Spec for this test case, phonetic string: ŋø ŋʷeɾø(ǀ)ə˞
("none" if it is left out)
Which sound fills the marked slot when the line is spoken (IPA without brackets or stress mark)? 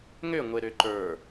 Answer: ǃ